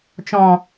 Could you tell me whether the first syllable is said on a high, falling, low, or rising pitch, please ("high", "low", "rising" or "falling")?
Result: low